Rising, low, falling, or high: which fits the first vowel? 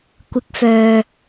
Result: rising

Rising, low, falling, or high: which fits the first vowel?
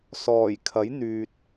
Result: low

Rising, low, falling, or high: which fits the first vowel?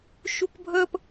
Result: high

